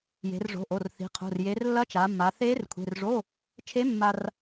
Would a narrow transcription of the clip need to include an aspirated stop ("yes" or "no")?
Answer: yes